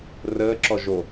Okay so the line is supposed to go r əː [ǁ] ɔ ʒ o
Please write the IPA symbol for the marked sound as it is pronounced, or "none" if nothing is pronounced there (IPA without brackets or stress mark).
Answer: ǁ